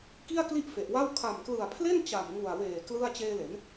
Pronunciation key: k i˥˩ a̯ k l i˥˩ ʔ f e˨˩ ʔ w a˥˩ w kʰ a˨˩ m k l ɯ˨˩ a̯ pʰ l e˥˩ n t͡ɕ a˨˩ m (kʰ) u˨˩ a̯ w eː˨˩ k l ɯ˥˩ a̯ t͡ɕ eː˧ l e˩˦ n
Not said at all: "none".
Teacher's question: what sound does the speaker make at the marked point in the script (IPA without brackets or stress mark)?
ŋ